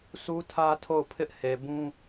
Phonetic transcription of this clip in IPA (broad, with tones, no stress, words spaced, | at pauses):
sʰu˦tʰä˦ tʰo˦˨ʊ̯pʰɪ˦ʔ he˨bũ˦